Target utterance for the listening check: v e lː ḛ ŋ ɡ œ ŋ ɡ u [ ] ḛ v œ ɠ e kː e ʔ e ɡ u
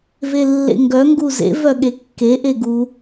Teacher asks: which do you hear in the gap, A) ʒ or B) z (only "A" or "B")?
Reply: B